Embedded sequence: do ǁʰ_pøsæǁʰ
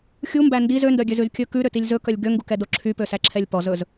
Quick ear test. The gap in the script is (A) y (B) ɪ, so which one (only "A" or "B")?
A